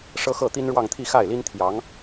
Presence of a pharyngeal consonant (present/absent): absent